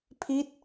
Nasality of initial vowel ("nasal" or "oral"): oral